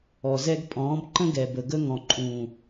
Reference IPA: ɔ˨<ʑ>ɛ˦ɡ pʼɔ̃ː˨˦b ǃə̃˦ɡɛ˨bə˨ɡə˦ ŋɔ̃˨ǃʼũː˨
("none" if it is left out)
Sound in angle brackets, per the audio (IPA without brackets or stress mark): z